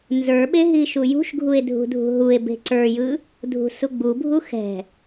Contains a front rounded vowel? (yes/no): no